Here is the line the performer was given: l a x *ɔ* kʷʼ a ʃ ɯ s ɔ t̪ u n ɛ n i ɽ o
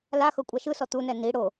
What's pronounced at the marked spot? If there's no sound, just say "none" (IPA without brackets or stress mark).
ɤ